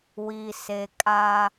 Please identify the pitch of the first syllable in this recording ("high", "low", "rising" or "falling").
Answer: low